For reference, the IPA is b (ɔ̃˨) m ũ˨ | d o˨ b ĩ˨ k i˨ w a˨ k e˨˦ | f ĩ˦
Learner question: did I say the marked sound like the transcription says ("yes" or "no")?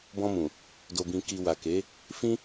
no